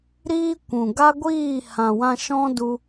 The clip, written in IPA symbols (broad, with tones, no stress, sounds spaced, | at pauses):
ɾ iː˦ kʷ ũ˨ ɡ a˦ ɡʷ iː˦˨ h ã˨ w ã˧ ʃ ɔ̃˦ d u˧